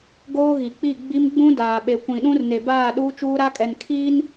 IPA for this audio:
ɡ oː˦ ɣ i˨ k͡p i˦˨ ɡ͡b i˦ m ɡ͡b ũ˦ d aː˨ ɓ e˨ kʷ ĩ˨ ɗ ũ˦ r n e˨ b aː˦˨ ɗ uː˦ t͡ʃ uː˦ ɾ a˦ kʼ ɛ˨ n kʰ iː˦ n

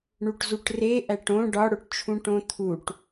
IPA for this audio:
ɳ u ʈ z u ʈ r e ʔ æ ʈ õ ɖ ɒ ɽ o ʈ t͡ʃʰ ũ ʈ õ t̪ʰ u ʈ

